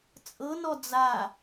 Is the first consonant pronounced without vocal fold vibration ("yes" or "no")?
yes